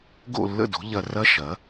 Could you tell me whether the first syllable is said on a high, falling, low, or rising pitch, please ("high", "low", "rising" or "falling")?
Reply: falling